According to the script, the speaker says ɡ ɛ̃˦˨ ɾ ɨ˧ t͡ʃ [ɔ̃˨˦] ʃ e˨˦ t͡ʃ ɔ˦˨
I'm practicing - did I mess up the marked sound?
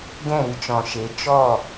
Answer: yes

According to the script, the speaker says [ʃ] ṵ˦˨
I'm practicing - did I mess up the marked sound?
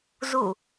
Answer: yes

